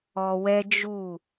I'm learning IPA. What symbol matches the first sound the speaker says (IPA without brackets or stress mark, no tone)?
ɔ